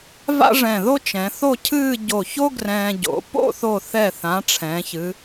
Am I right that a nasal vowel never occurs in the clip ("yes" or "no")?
no